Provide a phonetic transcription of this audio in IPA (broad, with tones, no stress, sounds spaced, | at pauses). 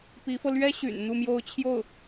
p i˧˥ f ɤ˧ l ɥ ɛ˥ ɕ y̰˨˩ n n̪ u˥˧ m j o˥˧ ʊ̯ t͡ɕʰ j o˥˩ ʊ̯